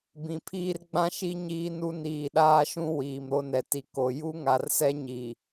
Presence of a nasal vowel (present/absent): present